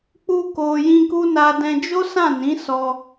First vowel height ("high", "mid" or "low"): high